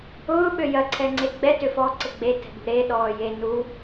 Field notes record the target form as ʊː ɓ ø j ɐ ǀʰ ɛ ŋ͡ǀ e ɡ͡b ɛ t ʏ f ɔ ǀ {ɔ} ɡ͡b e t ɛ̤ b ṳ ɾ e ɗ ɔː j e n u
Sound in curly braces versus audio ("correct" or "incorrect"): incorrect